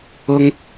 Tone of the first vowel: high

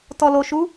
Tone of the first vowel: low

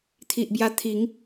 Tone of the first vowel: low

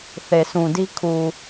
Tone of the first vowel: low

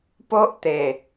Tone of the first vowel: high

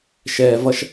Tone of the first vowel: low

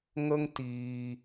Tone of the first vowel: high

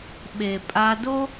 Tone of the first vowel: low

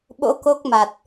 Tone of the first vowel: rising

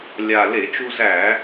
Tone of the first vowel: low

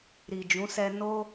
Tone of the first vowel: low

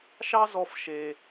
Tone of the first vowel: high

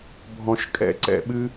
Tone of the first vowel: low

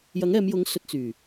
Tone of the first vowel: rising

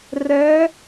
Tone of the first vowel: rising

